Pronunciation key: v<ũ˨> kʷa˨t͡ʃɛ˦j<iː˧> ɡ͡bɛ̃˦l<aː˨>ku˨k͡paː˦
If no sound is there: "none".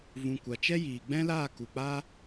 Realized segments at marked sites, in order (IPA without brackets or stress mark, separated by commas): ũ˨, iː˨, aː˦˨